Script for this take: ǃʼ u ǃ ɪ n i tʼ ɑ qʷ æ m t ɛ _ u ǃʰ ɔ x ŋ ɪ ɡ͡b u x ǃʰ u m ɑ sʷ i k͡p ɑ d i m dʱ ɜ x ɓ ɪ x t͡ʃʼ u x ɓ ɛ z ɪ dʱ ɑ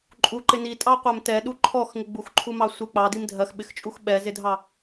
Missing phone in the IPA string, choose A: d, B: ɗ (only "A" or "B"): B